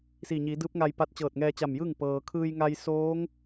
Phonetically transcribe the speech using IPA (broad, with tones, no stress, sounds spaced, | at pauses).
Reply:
s i˧˩ ɲ i˩˧ d ɯː˧˥ p̚ ŋ a˧ j p a˧˥ t̚ t͡ɕ ɤː˧˩ t̚ ŋ ɛː˧ t͡ɕ a˧˩ m j ɯː˥˨ ŋ p ɤː˩ kʰ ɯː˧ j ŋ a˧ j s oː˧˥ ŋ